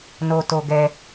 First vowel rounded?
yes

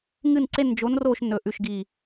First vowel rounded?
no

